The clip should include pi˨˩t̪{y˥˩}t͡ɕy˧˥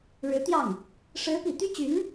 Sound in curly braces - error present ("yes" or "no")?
yes